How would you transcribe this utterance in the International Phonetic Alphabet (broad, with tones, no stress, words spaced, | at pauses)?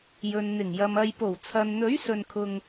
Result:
jɵ˨nn̪ɪ˨˩ŋjɐ˨m ɐ˨jpo˨˩wt͡sʰɐ˨nn̪ɵ˨˥ɥ sɵ˧nkʰʊ˧ŋ